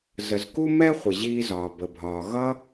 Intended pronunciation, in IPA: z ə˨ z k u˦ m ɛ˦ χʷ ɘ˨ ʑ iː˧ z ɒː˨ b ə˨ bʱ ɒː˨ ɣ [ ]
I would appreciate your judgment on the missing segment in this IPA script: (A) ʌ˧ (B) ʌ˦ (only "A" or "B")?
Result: B